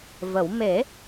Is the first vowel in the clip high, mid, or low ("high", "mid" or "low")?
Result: mid